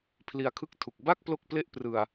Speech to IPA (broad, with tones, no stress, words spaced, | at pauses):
pʰli˧a̯kʰɯ˥˩k̚tʰu˨˩k̚ ba˥˩k̚ plo˥˩k̚ple˥˩ʔ prɯ˧a̯